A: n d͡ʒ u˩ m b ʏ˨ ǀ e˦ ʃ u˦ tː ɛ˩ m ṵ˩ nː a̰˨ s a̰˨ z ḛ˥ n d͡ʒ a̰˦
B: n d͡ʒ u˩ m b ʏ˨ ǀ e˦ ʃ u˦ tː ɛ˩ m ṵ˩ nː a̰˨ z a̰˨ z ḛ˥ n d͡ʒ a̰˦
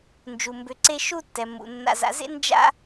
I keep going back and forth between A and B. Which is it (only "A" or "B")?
B